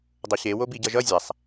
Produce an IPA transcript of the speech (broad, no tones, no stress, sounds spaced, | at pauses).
dˤ o ɕ e w o b i ɟ ʌ ʒ ʌ zʲ a sˤ